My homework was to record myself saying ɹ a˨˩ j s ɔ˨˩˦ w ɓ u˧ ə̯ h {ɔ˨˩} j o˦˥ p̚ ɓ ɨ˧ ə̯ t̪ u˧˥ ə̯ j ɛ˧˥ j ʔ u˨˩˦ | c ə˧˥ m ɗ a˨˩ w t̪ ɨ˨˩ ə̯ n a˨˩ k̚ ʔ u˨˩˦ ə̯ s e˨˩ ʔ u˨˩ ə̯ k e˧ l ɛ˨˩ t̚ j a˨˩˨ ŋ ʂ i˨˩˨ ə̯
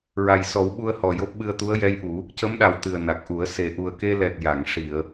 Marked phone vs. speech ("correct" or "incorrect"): correct